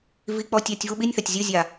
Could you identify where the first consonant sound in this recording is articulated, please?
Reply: labial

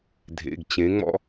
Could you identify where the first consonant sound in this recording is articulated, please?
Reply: alveolar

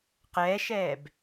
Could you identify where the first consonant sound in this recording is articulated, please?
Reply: uvular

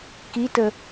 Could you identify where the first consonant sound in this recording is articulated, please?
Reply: velar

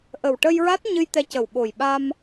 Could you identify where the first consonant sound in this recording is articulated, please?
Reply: glottal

